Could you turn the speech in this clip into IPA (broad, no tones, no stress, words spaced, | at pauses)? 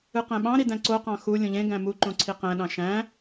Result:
ɯqæ̃ɓɑ̃ɾi dæ̃ǀoqɑ̃ xu lʲõʎẽɡæ̃ mu ǃõǀʰiqæ̃ɗɑ̃ ʃæ̃